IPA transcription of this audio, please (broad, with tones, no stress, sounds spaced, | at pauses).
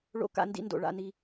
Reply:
ɭ o̰˨ k a̰˨ n d ḭ˨ n d o̰˩ ɭ a̰˨ n i˨